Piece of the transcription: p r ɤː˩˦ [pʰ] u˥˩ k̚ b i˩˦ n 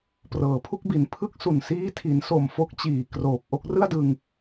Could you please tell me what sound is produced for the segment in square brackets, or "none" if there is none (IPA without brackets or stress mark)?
pʰ